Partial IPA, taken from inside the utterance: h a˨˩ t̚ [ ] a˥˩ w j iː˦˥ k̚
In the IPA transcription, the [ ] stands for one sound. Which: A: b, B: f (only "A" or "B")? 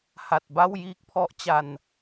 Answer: A